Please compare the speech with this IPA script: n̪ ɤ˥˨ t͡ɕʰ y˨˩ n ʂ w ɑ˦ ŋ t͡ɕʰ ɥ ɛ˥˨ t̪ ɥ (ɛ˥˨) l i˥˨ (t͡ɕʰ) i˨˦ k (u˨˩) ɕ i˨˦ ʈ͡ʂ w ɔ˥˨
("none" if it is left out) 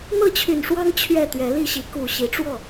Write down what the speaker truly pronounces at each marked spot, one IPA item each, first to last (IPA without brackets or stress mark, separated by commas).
ɛ˨˦, ɕ, u˨˩